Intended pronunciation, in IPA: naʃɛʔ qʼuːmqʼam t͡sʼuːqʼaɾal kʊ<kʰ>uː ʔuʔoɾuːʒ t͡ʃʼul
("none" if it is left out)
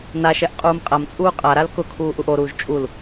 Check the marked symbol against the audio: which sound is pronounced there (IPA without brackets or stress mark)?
kʰ